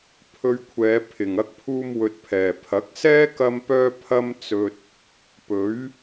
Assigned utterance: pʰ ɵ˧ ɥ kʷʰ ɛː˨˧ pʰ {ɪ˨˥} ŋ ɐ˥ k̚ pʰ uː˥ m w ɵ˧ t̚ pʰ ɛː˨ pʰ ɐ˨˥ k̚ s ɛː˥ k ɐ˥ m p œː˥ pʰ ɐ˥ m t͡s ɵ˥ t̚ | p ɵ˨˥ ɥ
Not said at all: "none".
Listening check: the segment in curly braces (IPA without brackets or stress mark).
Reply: ɪ˨